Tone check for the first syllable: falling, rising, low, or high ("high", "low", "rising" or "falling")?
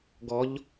rising